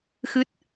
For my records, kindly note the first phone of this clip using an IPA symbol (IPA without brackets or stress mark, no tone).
x